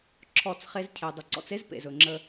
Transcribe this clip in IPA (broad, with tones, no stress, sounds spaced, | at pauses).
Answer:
ǁʰ ɔ˦˨ t͡s χ e˦ z cʰ e˨ dˤ ə˨ ǀ ɔ̰˧ t͡s e˦ z p ḛ˨ z ɵ˨ ŋ͡ǁ ə˧